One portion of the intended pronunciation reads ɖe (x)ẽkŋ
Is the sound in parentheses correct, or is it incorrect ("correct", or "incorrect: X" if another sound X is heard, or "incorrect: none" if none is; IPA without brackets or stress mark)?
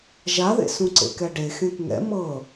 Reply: correct